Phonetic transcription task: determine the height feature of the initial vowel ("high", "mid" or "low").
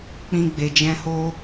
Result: high